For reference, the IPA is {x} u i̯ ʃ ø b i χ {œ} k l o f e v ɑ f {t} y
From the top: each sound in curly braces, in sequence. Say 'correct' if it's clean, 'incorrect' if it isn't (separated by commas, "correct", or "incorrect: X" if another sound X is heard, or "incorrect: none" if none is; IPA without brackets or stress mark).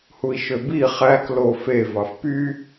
incorrect: h, incorrect: æ, incorrect: p